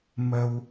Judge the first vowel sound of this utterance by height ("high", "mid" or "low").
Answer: mid